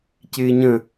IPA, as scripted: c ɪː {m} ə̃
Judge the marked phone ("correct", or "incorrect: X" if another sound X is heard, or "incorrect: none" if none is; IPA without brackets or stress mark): incorrect: ɲ